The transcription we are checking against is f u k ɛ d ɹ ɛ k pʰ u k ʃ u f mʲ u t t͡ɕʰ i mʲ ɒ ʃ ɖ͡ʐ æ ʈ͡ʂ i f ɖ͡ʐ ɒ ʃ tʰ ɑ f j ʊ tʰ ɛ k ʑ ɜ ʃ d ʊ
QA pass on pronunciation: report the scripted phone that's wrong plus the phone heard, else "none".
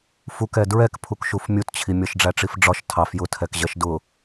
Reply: none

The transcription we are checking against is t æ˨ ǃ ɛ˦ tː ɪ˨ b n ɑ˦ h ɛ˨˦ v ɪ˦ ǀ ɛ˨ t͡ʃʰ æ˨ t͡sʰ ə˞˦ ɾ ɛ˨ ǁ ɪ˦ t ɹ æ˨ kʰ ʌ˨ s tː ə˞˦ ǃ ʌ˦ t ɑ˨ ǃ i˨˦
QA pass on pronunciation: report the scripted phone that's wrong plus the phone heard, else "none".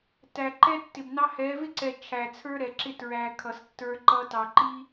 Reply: i˨˦ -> i˦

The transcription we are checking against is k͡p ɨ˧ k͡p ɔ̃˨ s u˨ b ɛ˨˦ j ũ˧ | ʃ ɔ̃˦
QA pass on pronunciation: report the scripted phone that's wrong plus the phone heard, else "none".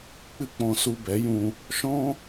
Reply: none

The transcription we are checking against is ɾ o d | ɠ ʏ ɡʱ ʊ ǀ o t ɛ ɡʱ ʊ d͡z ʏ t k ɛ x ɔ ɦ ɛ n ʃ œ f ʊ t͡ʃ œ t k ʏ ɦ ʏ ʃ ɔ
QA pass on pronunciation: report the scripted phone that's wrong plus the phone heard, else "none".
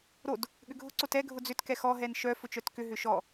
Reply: none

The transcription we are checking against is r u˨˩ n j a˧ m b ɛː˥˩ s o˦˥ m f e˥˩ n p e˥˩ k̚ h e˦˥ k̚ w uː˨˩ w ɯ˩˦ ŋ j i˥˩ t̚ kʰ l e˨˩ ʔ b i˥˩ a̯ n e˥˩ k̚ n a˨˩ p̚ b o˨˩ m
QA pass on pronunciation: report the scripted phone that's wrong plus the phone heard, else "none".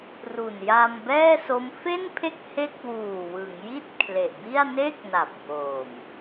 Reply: p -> pʰ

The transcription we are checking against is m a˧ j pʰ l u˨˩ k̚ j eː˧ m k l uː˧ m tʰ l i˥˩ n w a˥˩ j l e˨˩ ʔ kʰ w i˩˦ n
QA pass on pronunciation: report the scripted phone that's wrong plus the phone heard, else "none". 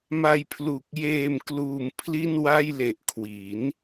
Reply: tʰ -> pʰ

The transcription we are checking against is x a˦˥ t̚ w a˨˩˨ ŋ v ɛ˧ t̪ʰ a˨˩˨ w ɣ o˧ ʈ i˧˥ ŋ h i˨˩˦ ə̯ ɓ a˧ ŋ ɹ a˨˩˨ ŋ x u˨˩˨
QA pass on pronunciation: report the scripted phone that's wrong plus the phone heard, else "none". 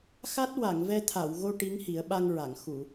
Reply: none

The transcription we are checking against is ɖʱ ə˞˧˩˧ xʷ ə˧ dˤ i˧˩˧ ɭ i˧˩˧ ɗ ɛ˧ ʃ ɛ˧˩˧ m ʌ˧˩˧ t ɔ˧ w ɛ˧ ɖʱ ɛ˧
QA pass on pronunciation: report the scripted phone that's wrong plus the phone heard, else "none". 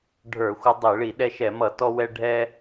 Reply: none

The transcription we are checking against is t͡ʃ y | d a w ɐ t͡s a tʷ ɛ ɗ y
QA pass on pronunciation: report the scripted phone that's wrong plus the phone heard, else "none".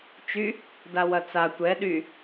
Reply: none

